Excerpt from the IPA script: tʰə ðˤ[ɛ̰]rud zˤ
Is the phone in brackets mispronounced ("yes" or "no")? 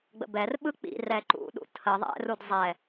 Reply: no